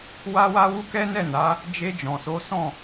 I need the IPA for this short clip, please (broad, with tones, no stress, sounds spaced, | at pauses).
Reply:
w a˧ w a˧ w u˦ k ɛ˦ n ɛ˦˨ n a˨˦ | d͡ʒ e˧ d͡ʒ ɔ̃˨ s o˨˦ s ɔ̃˦˨